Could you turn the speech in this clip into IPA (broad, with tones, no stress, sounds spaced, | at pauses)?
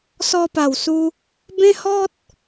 s ɔ˧ p a˨˩ w s u˧ | b ẽ˦ h ɔ˦ t̚